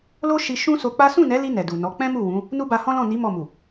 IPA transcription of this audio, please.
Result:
l o˦ ʃ i˧ ʃ ũ˦ s o˧ k͡p a˦ s ũ˦˨ n ɛ˨˦ l i˧ n ɛ˨ d u˨ n ɔ˨˦ k͡p ɛ̃˦ m u˦˨ w ũ˨˦ | n u˦ b a˧ h ɔ̃˦ l ɔ̃˦˨ n i˨˦ m ɔ˦˨ m u˨

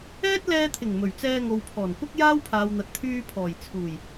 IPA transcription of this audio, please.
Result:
ɛː˥ t̚ l ɛː˧ t̪ʰ ɪ˨˩ ŋ m ɵ˨˩ ɥ t͡s ɛː˧ ŋ o˨ w pʰ ɔː˨˩ n kʷ ɐ˥ k̚ j aː˥ w pʰ aː˨ w n̪ ɐ˨ t̚ t̪ʰ yː˧ pʰ ɔː˨˩ j t͡sʰ uː˨˩ j

